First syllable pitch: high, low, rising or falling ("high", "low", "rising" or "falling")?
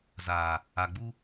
low